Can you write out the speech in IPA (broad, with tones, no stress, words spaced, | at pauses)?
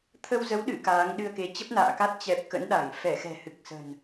t̪ʰə˧wzə˨˦wɗɨ̰˧˨ kaː˨˦ŋɗɨ˧ə̯ke˨˦ t͡ɕə˦˥p̚na̰ː˧˨ka˦˥t̚ t͡ɕɛ˨˩p̚ kə̰˧˥nɗa˧˩ŋ fɛ˧˩xɛ̤˨˩ hɨ˨˩k̚sə̤˨˩n